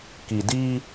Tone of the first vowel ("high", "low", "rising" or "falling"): low